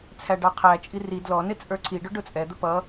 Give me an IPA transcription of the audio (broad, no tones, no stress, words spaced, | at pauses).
t͡sʰæɖɑqʰæt͡ʃʼi ri dlɔnɪ t͡sʼə˞ǀʰiɖʊ ɖʊt͡sʼɛd̪ə pʌ